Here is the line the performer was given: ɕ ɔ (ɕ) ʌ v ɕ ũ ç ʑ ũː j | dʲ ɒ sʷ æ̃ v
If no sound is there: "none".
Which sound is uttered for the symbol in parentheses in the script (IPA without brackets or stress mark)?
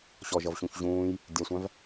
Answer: ʒ